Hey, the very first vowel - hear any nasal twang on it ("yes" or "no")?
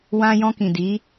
yes